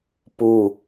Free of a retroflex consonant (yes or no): yes